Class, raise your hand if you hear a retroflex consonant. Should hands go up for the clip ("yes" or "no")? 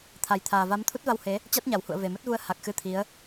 no